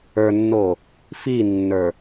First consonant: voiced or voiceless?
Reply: voiced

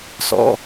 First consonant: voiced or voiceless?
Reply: voiceless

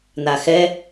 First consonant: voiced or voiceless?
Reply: voiced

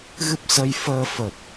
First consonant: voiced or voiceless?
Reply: voiced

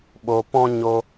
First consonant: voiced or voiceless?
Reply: voiced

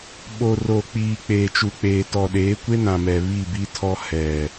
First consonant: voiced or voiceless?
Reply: voiced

